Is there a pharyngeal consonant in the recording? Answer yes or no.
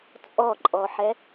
yes